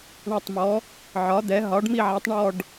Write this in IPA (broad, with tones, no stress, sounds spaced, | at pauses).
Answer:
ɳ a˦˨ tˤ m ɔ˩˥ | ʕ ɒ˩˥ d̪ ɛ˩˥ ɦ ɒ˩˥ ɖ m i˦˨ ʕ a˩˥ tˤ ɳ ɔ˦˨ ɖ